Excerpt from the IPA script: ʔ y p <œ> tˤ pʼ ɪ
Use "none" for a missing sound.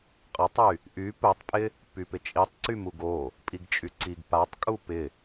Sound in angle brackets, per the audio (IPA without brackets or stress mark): œ